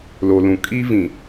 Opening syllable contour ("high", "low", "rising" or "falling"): low